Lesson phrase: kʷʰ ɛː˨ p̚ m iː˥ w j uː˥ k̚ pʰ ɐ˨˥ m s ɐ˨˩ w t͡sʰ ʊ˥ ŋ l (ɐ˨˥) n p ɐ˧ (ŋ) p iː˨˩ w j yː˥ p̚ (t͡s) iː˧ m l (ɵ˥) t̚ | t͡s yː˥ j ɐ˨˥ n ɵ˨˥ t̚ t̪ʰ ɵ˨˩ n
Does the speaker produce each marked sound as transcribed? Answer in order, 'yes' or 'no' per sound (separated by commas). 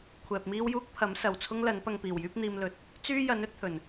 yes, yes, no, no